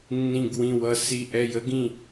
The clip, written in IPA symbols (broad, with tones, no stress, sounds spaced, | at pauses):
nː ĩ˧˩ ɡ w ĩ˧˩ w ʌ˧˩ s i˧˩ ʔ ɛ˧˩ j ə˧˥ ɡ ĩ˧˩